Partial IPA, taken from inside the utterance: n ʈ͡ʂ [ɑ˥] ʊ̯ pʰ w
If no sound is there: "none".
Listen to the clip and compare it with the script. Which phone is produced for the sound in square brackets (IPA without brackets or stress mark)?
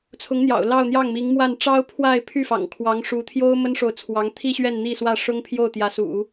ɑ˥